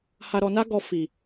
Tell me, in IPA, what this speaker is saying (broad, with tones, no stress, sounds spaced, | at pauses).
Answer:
h a˧ ɾ ɔ˧ n a˦ ɡ ɔ˧ f i˨